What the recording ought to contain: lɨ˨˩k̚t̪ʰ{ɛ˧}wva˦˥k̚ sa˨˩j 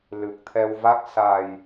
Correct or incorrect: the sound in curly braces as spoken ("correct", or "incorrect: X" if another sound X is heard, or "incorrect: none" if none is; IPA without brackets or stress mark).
correct